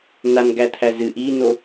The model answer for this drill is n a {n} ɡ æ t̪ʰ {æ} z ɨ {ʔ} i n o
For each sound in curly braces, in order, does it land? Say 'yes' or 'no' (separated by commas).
yes, yes, yes